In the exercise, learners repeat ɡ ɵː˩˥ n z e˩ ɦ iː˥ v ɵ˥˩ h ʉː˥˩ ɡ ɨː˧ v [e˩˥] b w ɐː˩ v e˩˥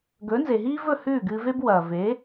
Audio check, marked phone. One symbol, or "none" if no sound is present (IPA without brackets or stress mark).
e˥